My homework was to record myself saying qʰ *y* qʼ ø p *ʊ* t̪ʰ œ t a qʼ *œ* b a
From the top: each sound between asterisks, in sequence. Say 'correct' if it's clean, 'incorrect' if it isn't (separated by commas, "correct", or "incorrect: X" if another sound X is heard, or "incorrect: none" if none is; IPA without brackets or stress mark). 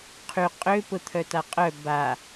correct, correct, correct